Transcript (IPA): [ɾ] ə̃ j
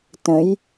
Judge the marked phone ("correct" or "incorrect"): incorrect